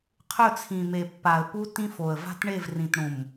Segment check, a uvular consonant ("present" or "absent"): present